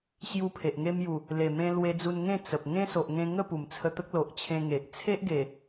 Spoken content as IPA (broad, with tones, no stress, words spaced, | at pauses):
ɕju˧ pʰe˨ʔŋe˦mju˨˩ | le˨˩mẽ˧ lwe˧d͡zu˧n ŋẽ˥˧t͡sə˨p̚ ŋẽ˦so˨ʔŋẽ˧ŋə˥˧ pu˨˩mt͡sʰə˧t̪ə˦k̚ lo˨ʔt͡ɕʰẽ˧ŋe˨ʔ t͡sʰe˦ʔɡe˨˩